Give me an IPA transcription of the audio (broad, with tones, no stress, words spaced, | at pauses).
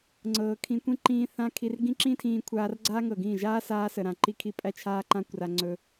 ŋ͡ǀɤː˨kʰĩ˧kʷĩ˦ ǃĩː˧ θã˦kʰi˧r ɡĩ˦ ǁĩ˦tʰĩː˧ kʷʰaː˧rɡ͡ǀaː˦ŋɤ˨ɡĩː˦˨ ʒaː˦saː˧ sə˨ɾã˧ ǃi˦kʰi˦ pʼæ˦ t͡ʃʰaː˦ǃã˦kʷra˧ŋ͡ǀɵ˧